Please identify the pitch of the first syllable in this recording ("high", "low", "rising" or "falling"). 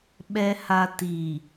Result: low